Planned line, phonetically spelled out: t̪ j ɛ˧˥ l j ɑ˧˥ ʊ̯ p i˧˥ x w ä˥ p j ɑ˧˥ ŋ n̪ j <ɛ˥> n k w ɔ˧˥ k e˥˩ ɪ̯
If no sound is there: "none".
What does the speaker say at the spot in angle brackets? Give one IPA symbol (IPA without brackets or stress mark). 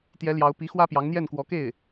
ɛ˥˩